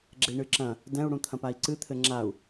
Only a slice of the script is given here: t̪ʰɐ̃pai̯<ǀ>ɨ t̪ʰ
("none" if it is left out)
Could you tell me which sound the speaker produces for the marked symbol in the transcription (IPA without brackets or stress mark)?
ǀ